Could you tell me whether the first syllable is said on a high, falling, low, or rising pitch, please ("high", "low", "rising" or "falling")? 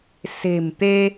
low